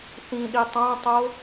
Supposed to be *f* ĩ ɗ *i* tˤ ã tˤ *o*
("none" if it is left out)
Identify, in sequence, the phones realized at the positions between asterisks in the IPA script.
θ, i, o

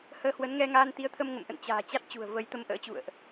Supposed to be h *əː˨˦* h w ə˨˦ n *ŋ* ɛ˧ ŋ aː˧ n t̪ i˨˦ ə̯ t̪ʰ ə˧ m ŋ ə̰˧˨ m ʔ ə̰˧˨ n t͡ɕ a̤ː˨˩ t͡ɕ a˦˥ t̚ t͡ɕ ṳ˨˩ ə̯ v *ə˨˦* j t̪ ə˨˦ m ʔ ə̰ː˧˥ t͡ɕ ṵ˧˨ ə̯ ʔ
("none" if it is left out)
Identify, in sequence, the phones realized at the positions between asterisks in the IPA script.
əː˧, ŋ, ə˨˦

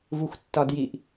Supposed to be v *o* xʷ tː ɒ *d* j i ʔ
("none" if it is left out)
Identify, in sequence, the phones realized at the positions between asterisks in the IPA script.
u, d

